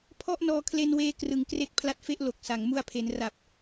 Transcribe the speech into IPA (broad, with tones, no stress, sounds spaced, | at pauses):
pʰ ɔ˥˩ ʔ n ɔː˧ kʰ l e˧ n w eː˧ k r ɯ˨˩ ŋ k r e˦˥ k̚ pʰ l a˦˥ t̚ f e˥˩ ʔ l o˨˩ k̚ s a˩˦ ŋ m u˧ a̯ pʰ e˩˦ n r a˨˩ p̚